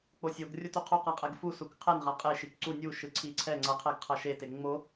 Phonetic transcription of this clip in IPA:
k͡p o sʲ o ɡ rʲ o t u qʰ o q a qʼ ɛ ɡ f u s u k qʰ ɛ n ʁ a qʼ e ʃ i k ǀ u nʲ u ʃ ɯ ǀʰ i ǀʰ ɛ ŋ͡ǀ ʌ qʰ ɛ ɡ qʰ ʌ ʃ e t e ŋ͡m o

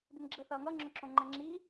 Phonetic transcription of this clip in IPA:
d ɪ n ɡ͡ǁ ə θ ʌː ŋ ʌ ŋ͡ǁ ʊ ǁ õ ŋ͡ǃ ɛ̃ ŋ͡ǁ i

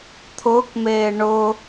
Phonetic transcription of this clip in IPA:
t̪ʰ ʊː k m eː ɳ ʊ

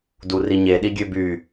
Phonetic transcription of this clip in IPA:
d u r i ɲ e ɗ i ɡʲ ø b y

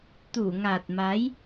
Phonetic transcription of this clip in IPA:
t̪ u˧˩ ŋ a˨˩ t̚ m a˨˦ j

